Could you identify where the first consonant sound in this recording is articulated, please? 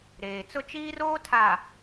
alveolar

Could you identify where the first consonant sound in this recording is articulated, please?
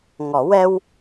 velar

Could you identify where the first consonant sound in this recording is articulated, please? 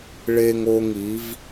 retroflex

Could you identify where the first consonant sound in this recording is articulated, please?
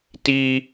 alveolar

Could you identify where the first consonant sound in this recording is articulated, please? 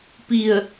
labial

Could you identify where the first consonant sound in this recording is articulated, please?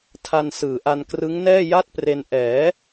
alveolar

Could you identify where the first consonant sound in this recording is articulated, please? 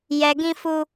palatal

